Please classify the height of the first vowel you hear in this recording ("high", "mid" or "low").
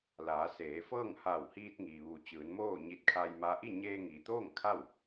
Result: low